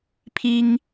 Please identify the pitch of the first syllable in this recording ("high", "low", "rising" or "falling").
high